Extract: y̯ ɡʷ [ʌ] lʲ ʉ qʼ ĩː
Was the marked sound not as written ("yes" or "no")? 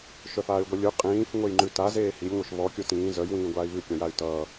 no